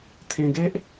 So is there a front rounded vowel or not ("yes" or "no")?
no